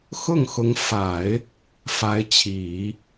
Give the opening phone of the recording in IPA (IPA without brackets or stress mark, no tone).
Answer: x